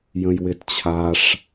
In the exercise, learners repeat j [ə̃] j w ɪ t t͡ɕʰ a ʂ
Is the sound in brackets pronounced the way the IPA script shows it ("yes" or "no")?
yes